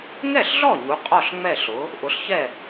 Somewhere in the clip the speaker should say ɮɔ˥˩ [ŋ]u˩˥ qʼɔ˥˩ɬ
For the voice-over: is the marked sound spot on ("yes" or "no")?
no